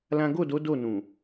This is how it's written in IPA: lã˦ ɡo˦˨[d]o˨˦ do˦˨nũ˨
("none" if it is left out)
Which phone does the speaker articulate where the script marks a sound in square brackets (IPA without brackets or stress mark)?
d